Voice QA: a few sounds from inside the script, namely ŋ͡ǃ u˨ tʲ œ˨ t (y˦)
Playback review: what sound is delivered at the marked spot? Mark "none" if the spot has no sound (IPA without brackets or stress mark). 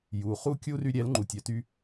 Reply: y˧